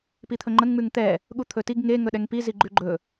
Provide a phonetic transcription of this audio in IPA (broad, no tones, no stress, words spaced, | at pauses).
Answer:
pit̪ʰɵŋ͡ǃəŋ ŋ͡mʉŋt̪ɛ | ɠut̪ʰɵtiɡ ŋe ŋɵɗɛŋpi ziɡ͡ǃʉɡ͡ǃɵ